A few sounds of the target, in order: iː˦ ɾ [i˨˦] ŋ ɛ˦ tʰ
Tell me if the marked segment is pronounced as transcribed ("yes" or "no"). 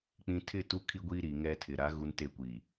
no